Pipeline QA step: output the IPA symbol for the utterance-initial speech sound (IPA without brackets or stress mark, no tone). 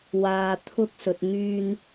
w